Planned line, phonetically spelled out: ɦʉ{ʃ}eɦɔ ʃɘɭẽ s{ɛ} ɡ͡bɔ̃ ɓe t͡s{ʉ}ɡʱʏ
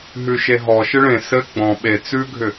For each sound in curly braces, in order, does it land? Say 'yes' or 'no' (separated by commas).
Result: yes, no, yes